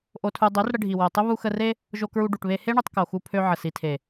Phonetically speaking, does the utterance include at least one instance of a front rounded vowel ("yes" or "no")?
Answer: yes